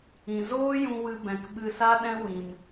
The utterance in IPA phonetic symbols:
ĩ˨ z oː˦ j ũ˧ w ɨ˧ b ɛ̃˨ k ɓ ɨ˧ s a˦ ɗ ɛ̃˦ w ĩ˧ m

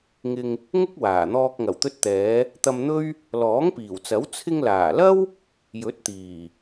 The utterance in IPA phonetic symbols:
ŋ ɪ˧ ŋ | ŋ ʊ˥ k̚ w aː˨˩ n̪ ɔː˧ k̚ ŋ ɐ˨˩ w t̪ ɵ˧ t̚ t̪ ɛː˨˧ | t̪ ɐ˧ m n̪ ɵ˥ ɥ | l ɔː˨˥ ŋ p iː˨˩ w t͡s ɐ˨˥ w t͡sʰ ɪ˧ ŋ l aː˨˩ l ɐ˥ w | j ɵ˨˥ t̚ t̪ iː˨˩

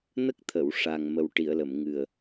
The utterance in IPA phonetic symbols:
n ə˦˥ k̚ t̪ʰ ə˨˩˨ w ʂ a˨˩ ŋ m ə˨˩ w ʈ i˨˩˨ ə̯ l ə˨˩˨ m ŋ ɨ˨˩ ə̯

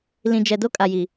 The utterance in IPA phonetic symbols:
l ĩ˨ d͡ʒ ɛ˨ d o˦ kʼ a˨ j i˨

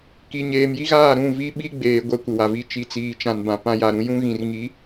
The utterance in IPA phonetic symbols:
k i˨ ɲ eː˨ m j i˦ ɣ aː˦˨ ɾ ũ˦˨ v i˦ ɓ i˦ ɡ͡b eː˨ ɡʷ ɛ˦ kʷ ɪ˨ w a˨ v i˦ t͡ʃ i˨ t͡s iː˨ t͡ʃ ã˨ n b ã˨ p ã˦ j a˨˦ ɾ ũ˦ j ũ˦ ɣ ĩ˨ r ŋ i˨˦

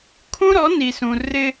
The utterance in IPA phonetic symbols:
kʰ ũ˦ ɾ ɔ˨˦ n i˨ s ũ˨ r ɪ˦

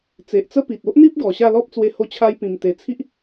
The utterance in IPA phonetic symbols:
t͡s e˨ ʔ t͡s ə˦ p i˨ t̚ o˦ ʔ n̪ i˦ p̚ ɡ ɔ˨˩ ɕ a˥˧ l ɔ˦ p̚ t͡s w e˧ h o˧ t͡ɕʰ a˧ j p ĩ˨˩ m t̪ e˨˩ t͡sʰ i˦ ʔ

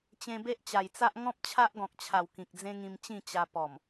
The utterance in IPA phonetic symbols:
t͡ɕ ẽ˧ b e˦ ʔ t͡ɕ a˨˩ j t͡s a˦ ʔ ŋ ɔ̃˦ p̚ t͡ɕʰ a˦ ʔ ɡ ɔ̃˨ k̚ t͡ɕʰ a˨˩ w k ĩ˨ k̚ d͡z ẽ˦ ŋ ĩ˧ m t͡ɕ ĩ˥˧ t͡ɕ a˧ p ɔ˨˩ m

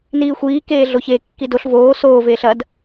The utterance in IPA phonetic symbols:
n iː xʷ iː k eː ɮ o ç e kː i d o ɬ v oː s oː v eː ɬ ɐ d

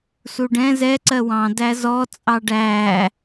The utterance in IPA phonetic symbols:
s u ɖ ɛ̃ z ɛ ǀ ɜ w ɑ̃ d æ z ɔ t͡sʼ ɑ ɖ æː

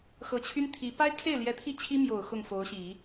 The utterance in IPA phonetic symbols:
x ɤ˧˥ t͡ɕʰ y˥ n t̪ʰ i˧˥ p a˥ ɪ̯ kʰ e˥˩ ɪ̯ l j ɛ˧˥ t̪ʰ i˥˩ t͡ɕʰ i˥ m j o˨˩ ʊ̯ x ʊ˥˩ ŋ f o˧˥ ʊ̯ ɕ i˨˩˦

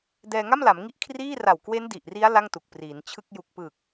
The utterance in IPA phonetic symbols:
d ɛː˧ ŋ a˥˩ m l a˩˦ m ŋ i˦˥ ʔ kʰ r iː˥˩ r a˨˩ w k w e˦˥ n d i˨˩ ʔ r i˦˥ a̯ l a˥˩ ŋ t u˨˩ k̚ p r iː˩˦ n t͡ɕʰ ɯ˥˩ k̚ j u˨˩ k̚ p ɯ˨˩ k̚

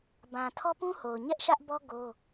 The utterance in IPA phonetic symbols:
b ã˨ tʰ ɔ˦ p ũ˦ h o˨ ʊ̯ ɲ ɛ˦ ʔ ʃ ä˦ ʔ b ɔ˦ ɡ o˦

